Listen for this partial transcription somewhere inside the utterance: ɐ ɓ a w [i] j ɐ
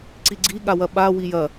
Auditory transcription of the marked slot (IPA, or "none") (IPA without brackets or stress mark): i